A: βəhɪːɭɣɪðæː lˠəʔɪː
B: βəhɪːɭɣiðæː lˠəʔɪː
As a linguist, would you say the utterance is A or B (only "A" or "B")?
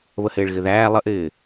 A